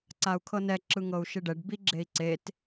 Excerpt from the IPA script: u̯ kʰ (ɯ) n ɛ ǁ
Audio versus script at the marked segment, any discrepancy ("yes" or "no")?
yes